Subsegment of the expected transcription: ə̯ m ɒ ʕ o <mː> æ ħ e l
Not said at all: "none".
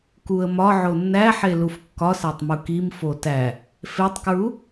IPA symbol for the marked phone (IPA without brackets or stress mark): nː